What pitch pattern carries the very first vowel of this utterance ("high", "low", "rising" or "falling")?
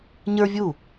high